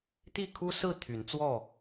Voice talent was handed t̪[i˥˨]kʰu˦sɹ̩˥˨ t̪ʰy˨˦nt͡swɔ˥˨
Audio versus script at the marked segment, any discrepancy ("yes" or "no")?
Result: no